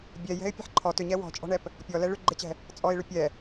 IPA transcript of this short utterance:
bʲɛjɛ̤ɪ̯ pʲɛ̤ħǃʰɔ tʏɲɛ wɔ̤t͡ʃʼɔ̤ɳɛp | pʲɔlɛ ɭʏɡ͡ǃet͡ɕɛ̤ | t͡sʼɔɪ̯ɭʏ pʲɛ

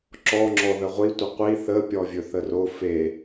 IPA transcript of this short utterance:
ǁɔŋ͡ǁɔ ðəʁʷi tʷəqʷi θəpʲɔvʲɵ θəro fe

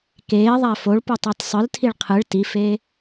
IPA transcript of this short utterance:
keːðˤæ foɭputˤɑt sˤɯltʰiɭ qʰɯɭ tifeː

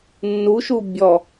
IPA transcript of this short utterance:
nːuʃu bʲɔ

